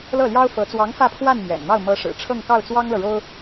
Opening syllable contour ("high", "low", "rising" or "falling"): falling